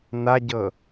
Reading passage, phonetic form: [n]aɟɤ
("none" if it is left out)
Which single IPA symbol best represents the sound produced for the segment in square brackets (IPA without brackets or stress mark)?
n